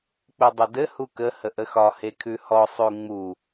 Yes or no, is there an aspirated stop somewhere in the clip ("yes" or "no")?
yes